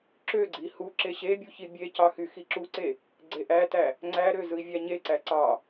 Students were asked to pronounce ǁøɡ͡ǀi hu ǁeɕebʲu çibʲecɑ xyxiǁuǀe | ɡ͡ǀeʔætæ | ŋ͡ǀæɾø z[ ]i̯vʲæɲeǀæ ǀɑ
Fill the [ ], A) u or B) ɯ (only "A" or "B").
B